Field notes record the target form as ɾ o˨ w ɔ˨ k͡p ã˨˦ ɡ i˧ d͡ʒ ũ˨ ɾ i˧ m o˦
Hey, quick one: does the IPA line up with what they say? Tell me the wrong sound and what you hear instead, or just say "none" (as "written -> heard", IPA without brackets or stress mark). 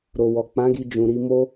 none